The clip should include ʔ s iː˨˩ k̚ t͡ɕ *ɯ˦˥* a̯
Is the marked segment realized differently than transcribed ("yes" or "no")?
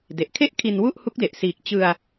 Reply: yes